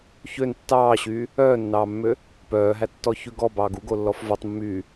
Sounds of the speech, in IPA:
ç ø n tː ɑː ɕ yː | œː nː ɑː mː ø | p œː ɦ æ tː ɔ ç ʉ ɡ ɔ b ɑː ɡ u ɡ o lː ɔ f v ɔ tˤ mː yː

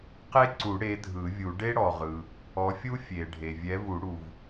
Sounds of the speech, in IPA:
q e˥ ǀ u˨˩˦ ɽ e˨˥ dʱ ɯ˨˩˦ vʲ u˨˩˦ ɖ e˥ ɽ ɔ˩ ʁ ɯ˩ | ɔ˨˥ fʲ u˥ fʲ e˩ ɖʱ e˩ vʲ ɛ˨˥ v u˨˩˦ ɽ u˩ v

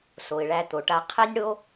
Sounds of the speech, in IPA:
s o˩ ɪ̯ ɭ æ˨ t̪ o˩ ʈ a˨ qʰ ɛ˦ nʲ ɽ o˦

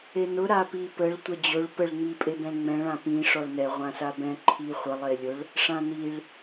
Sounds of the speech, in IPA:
e n ʊ ɾ a p i p ə ɭ tʷ ɛ d͡ʑ ʊ ɭ p ə ɭ ŋ͡m i pʼ e b ɛ̃ ŋ͡m ɛ̃ ɭ ã p ĩ ʂ ɔ ɭ n ɛ ʁʷ ã s a b ɛ̃ ǃʰ i χʷ ə lˠ e lʲ ʊ ɭ | ʂ ã n i ɭ

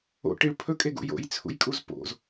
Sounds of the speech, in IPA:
o̰ ʈ i ɭ pʰ ɵ kʼ e ɡ ṵ j o̰ j t͡sʰ ṵ j kʼ u z p o̰ z

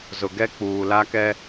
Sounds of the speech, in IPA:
z ʊ˨ ɡ ɛ˦ k͡p uː˨ l a˦ k ɛ˦

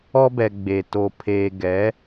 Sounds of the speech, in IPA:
ɔ˦ b ɛ˨ ɡ͡b eː˨ t o˨ pʰ eː˨ ɡ ɛ˨˦

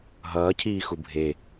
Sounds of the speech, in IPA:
ɦ ʌː cʰ iː x u bʱ e

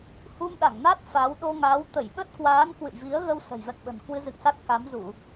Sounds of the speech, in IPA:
h u˧ m ɗ a˧˩ ŋ n a˦˥ t̚ f a˨˦ w ɗ o˧ ŋ a˨˦ w t̪ ə˧˩ j ɓ ə˦˥ t̚ k w aː˨˦ n k w ɨ̰˧˨ j v i˨˦ ə̯ ɣ ə˧ w s ə̤˨˩ j v ɛ̰˧˨ ŋ ɓ ə̤˨˩ n k w ɨ˧ z ɨ̰˧˨ ŋ s a˦˥ t̚ k a˨˦ m z u˧˩˨

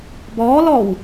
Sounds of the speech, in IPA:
b ɔː l ɔ w

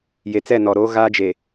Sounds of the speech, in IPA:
j e˨ t͡s ɛ˦˨ n ɔ˨ ɾ oː˦ ɣ a˦ d͡ʒ e˨

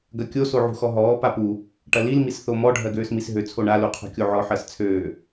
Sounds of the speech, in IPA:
ɡ ɐ kʲ o s o ʕ ṳ x ɔ ɦ ɔː p a p u | ʈ ɐ l i l m i s θ o m ɔ ɖʱ ɜ ɡ øː s m i s ɦ ø t͡sʰ o ɳ a l u qʰ o̤ kʲ o ʕ ɔ ħ ɜ s t͡sʰ øː

